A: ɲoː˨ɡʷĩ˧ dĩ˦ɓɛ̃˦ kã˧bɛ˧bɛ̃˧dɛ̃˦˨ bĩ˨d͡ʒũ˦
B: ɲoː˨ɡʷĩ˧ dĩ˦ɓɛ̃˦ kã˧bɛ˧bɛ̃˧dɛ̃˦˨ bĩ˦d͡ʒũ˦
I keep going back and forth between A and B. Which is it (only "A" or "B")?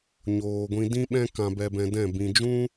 A